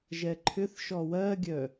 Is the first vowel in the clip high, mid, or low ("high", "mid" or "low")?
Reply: mid